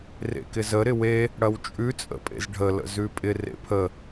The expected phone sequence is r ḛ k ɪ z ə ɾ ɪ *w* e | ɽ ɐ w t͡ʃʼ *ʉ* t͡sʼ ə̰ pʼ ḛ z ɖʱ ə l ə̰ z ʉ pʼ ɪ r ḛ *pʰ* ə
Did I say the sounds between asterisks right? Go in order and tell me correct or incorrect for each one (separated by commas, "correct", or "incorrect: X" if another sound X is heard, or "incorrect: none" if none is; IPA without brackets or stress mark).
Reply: correct, correct, correct